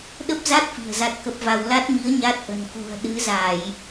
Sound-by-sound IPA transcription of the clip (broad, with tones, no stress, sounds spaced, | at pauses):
ɗ ə˦˥ p̚ z a˦˥ t̚ f i̤˨˩ ə̯ z a˦˥ t̚ k ə˦˥ p̚ v a˧ w l a˦˥ t̚ m i˨˦ ə̯ ɲ a˦˥ t̚ ʔ ə̤˨˩ n k ṳ˨˩ ə̯ ɗ ɨ˨˦ z a˧˩˨ j